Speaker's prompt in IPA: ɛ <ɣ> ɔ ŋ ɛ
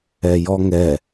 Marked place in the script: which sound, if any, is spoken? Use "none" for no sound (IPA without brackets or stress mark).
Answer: j